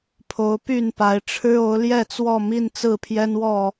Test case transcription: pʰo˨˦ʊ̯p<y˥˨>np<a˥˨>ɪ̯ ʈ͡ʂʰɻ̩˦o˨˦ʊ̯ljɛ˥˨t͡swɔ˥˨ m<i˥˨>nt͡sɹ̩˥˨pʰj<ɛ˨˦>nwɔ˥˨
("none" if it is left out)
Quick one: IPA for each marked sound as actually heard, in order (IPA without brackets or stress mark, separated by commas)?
y˥˨, a˨˦, i˥˨, ɛ˦